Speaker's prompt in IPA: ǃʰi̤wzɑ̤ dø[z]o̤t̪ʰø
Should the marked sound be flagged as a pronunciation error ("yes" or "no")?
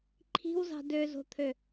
no